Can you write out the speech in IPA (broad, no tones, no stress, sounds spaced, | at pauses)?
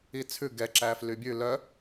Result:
i t͡sʰ ʉ ɡ ɛ ǁ æː f l y bʲ ʉ l œ